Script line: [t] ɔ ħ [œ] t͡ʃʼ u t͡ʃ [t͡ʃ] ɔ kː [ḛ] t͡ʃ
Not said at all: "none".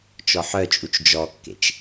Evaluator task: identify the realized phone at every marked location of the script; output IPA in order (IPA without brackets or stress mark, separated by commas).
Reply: t͡ʃ, œ, d͡ʒ, ḛ